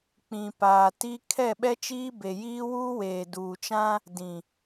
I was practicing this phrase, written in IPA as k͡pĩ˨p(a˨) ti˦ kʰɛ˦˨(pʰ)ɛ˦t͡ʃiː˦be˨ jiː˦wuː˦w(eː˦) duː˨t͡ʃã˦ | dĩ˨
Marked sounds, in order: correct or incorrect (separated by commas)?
incorrect, incorrect, incorrect